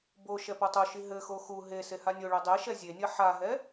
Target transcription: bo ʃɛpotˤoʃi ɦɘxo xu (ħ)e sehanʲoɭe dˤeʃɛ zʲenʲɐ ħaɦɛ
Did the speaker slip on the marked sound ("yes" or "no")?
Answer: yes